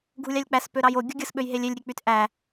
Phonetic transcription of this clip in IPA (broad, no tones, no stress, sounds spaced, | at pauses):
ɡʱ u lʲ ɑ lʲ k͡p æ s p ø ɾ ɑ j o ɡʲ o ɡʲ ɯ s ɓ ø j ɦ e lʲ e lʲ ɾʲ e k͡p y t ʔ æ